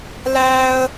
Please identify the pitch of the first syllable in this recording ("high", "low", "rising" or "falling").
high